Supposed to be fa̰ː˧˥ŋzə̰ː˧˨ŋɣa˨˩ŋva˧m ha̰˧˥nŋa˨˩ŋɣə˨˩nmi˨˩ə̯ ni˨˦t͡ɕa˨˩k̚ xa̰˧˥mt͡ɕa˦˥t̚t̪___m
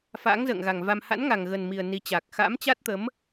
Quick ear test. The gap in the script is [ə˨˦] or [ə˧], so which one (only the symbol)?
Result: ə˨˦